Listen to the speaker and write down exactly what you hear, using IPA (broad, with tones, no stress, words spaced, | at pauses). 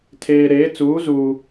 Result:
tʰeː˨ɾeː˨˦ t͡suː˨˦zuː˨